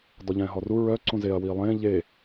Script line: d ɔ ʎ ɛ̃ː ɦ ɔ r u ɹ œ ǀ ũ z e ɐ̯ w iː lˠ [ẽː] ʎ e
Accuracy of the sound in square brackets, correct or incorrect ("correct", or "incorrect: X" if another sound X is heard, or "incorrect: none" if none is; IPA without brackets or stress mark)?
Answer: correct